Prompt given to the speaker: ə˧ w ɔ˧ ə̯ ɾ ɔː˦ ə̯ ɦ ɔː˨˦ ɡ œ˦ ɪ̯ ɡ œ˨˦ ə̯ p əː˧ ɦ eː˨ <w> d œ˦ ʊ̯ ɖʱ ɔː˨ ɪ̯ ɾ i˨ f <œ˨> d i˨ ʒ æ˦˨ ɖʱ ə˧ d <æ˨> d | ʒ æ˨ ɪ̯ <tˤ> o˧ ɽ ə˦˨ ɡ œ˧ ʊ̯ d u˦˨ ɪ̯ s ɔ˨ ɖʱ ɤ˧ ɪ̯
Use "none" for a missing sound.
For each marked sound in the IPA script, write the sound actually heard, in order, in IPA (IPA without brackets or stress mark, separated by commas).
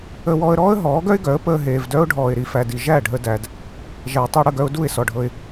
v, æ˨, æ˨, tˤ